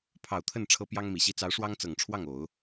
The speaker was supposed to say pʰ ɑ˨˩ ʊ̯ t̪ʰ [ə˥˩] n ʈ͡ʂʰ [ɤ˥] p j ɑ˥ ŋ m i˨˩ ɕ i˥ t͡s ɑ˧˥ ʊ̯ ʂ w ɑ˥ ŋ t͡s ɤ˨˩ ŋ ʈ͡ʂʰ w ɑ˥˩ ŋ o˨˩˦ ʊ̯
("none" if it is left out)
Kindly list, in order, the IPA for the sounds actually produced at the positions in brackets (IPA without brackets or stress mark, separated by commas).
ə˥˩, ɤ˥